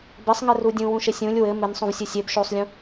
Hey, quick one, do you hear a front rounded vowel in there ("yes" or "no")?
no